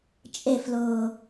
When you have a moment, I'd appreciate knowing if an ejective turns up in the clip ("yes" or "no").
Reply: yes